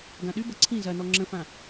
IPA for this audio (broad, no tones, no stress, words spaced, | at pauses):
ɡãɗybɐ ǀʰĩ zɐnɔ ŋ͡ǁə̃fã